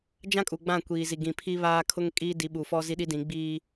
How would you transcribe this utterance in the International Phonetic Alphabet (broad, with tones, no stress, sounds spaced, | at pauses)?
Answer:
d͡ʒ ã˦ kʼ u˨ ɡ͡b ã˦˨ kʷ iː˨ z i˨ ɡ ĩ˨ pʰ i˦ β aː˦ kʰ ʊ˦ ŋ kʼ iː˦ d i˨˦ ɓ u˨ f ɔ˦ z i˦ ɗ i˦ d ĩ˨˦ ɡ͡b iː˦